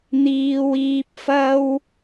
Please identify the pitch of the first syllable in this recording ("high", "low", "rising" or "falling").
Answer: low